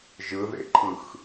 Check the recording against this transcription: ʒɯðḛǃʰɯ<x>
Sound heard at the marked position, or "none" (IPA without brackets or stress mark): x